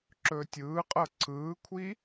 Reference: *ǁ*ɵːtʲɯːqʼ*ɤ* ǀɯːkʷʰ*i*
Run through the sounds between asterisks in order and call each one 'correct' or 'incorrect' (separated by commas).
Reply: correct, correct, correct